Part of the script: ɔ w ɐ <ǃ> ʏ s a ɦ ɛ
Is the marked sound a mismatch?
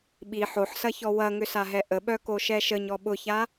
yes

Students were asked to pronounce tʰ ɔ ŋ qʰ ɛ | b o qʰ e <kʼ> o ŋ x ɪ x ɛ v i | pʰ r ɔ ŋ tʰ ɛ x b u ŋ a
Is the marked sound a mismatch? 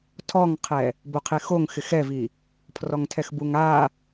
yes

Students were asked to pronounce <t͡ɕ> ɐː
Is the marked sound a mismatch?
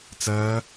yes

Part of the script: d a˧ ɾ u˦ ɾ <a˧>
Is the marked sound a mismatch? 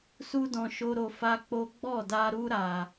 no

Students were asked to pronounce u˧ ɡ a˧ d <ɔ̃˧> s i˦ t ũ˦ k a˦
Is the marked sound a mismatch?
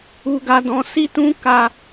no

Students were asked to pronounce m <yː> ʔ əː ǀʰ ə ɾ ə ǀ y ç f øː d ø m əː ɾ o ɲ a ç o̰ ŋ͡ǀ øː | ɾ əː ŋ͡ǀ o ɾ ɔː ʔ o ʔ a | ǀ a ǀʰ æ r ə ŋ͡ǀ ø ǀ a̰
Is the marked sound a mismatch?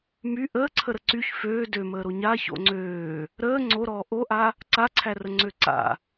yes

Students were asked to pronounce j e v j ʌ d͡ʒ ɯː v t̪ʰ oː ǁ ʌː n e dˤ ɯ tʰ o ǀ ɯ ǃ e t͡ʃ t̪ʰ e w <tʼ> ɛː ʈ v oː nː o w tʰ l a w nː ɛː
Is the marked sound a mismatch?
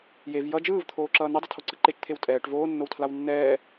no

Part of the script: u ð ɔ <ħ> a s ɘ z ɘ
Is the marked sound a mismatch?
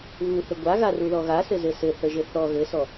yes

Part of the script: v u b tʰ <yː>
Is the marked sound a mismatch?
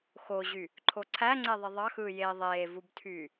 no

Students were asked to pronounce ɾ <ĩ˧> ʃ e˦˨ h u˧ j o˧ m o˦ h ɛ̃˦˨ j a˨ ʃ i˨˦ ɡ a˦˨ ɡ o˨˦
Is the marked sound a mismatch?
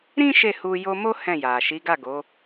yes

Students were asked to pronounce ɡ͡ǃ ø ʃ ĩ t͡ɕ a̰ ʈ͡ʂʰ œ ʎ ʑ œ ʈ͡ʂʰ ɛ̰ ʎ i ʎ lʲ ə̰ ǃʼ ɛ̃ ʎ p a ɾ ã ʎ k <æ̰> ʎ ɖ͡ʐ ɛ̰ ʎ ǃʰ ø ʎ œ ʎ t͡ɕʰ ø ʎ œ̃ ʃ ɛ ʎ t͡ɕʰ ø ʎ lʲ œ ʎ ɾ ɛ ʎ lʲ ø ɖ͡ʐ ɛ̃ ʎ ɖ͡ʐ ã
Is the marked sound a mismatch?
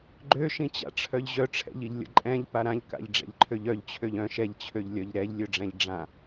yes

